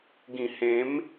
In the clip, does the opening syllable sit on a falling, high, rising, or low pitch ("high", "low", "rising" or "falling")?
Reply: low